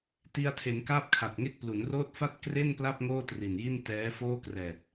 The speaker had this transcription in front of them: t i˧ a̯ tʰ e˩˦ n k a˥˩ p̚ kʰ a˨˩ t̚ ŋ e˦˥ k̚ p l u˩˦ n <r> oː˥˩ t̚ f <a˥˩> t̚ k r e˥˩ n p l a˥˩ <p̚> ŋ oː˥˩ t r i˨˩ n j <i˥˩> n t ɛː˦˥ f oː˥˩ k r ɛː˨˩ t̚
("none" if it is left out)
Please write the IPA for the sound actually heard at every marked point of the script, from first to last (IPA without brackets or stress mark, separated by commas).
r, a˥˩, p̚, i˥˩